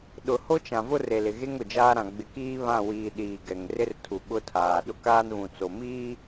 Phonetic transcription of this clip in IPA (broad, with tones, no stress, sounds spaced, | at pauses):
ɗ ʊ˨ h o˦ t͡ʃ ã˨ v ʊ˦ r e˨ l ɪ˨ ɣ e˦ ŋ ʊ˨ d͡ʒ aː˦ ɾ ã˨ ɡ͡b ɪ˨ k iː˦ β ã˦˨ w iː˨ ɗ iː˨ ɡ ɛ˨ ŋ r ɪ˦ r tʰ u˨ ɓ ʊ˦ tʰ aː˨ ɗ ʊ˦ k aː˦ n β ũ˨ t͡s o˨ m iː˦